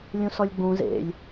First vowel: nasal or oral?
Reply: nasal